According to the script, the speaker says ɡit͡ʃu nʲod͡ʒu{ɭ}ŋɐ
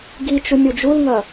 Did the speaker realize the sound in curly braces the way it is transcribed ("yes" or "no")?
no